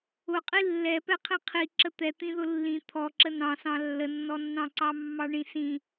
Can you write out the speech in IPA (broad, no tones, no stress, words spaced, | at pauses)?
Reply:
ʊqʼi lːɛpɛqʰĩ qʰiǁə t̪ɛt̪ĩðʊ lːĩ t̪ʰɔǁə nɑ̃sɑ̃ lːənːɔnːɑ̃ǀɑ mːɑɳĩsĩ